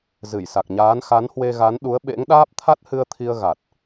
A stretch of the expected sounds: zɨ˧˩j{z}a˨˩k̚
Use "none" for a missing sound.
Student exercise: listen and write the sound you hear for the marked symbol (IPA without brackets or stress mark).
s